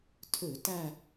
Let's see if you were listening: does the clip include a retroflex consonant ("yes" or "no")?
no